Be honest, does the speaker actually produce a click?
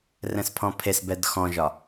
no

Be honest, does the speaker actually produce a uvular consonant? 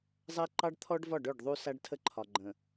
no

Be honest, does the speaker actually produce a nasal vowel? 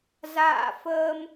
no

